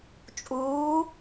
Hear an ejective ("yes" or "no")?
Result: yes